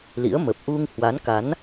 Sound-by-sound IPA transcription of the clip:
lḭ˧˥ə̯mə˨˩p̚ ʔu˧ŋ hwa˨˦nka˨˦n

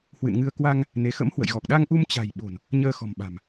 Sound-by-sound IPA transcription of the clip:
hwɨ̰˧˨nŋɨ˧ə̯ kwa˧ŋ | ne˨˦ xə̰˧˥mhwə̰˧˨jɣɔ˨˩k̚ ɗa˧ŋʔu˧m t͡ɕa̤˨˩j ɓo̤˨˩n | ɲəː˧xɔ̤˨˩mɓa̤˨˩m

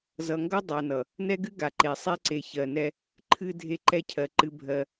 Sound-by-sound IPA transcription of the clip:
zʌ˨ŋɡʌ˦ dˤa˨nʌ˨ | nɛ˦ɡɨ˦ ɡa˨ǃe˨ sˤe˦ǀe˨çɜ˨nɛ˦ | ǃʰɨ˨ dʱe˦ǃɛ˦cʰɜ˨ǃɨ˦ bʱɜ˦

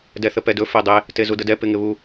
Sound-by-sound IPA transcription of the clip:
dɛθəpɛdɵ fedˤe | tezudədɛ pɪŋɪβu

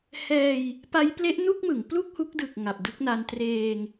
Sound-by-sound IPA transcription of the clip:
hɛː˧j | pa˦˥jple˦˥ʔnu˥˩k̚mɯ˩˦ŋ plu˥˩k̚hu˦˥k̚dɯ˨˩k̚ ŋa˨˩p̚dɯ˦˥k̚na˧n treː˧ŋ

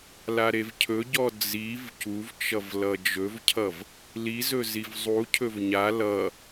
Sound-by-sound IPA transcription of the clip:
laɾevcʰɵɟɔ d͡ziv cuvt͡ʃʌv lʌd͡ʒɵvcʰʌv | lizɵ zivzˤucʰɵv ɲa lʌ

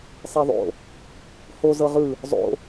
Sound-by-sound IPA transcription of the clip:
sˤeðˤo̰ | ho zɤʁɯ | zˤo̰

